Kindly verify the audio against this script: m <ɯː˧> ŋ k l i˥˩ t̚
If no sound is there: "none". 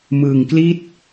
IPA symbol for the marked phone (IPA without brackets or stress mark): ɯː˧